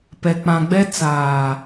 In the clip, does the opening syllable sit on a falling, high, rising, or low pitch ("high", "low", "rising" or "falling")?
low